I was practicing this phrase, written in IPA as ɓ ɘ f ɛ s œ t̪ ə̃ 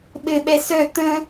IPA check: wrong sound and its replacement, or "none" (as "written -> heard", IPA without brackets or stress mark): f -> ɓ